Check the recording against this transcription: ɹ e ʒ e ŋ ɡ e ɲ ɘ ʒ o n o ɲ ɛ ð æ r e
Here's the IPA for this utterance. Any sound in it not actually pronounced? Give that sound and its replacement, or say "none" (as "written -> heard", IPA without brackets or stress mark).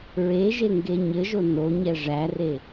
ð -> ʐ